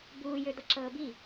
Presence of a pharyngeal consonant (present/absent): absent